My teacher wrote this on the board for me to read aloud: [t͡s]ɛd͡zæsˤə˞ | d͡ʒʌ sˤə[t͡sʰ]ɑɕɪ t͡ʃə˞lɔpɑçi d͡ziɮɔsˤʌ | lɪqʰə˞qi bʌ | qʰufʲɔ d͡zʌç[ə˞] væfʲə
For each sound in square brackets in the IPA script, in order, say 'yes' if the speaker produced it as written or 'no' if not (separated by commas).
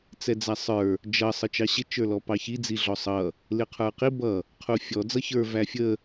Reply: yes, no, yes